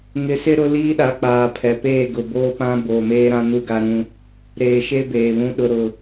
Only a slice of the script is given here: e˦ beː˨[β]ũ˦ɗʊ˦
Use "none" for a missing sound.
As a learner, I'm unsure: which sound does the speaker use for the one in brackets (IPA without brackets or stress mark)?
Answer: β